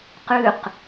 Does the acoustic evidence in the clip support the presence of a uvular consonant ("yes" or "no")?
yes